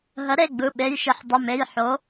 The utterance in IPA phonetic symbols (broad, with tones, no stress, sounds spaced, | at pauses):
ɦ ə˩˥ ɾ e˩˧˩ ɡ͡b ɯ˩˧˩ ɓ e˩˧˩ j ʃ i˩˥ ħ dˤ ə˩˧˩ m e˩˧˩ j ħ o˩˥